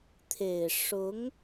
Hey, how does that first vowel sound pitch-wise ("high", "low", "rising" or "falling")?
low